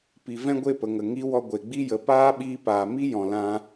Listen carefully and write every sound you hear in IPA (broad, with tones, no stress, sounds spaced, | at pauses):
p i˨ v ɛ̃˦ ɡʷ e˦˨ p ə˨ ŋ ə˨ ŋ i˨˦ w ɔ˧ ɡʷ e˨ ɡ͡b i˦ j ə˨ p aː˦ ɓ iː˧ p aː˨ m i˦ j ɔ̃˨ l ã˧